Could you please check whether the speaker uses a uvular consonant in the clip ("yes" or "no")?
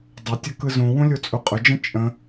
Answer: yes